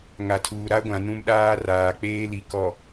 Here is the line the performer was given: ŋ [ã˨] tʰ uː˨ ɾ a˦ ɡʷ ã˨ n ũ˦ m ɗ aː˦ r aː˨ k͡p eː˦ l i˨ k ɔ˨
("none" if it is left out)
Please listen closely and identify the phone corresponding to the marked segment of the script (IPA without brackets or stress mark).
a˨